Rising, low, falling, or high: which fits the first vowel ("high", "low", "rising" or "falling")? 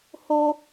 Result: high